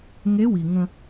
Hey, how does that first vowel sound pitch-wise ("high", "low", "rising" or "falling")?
rising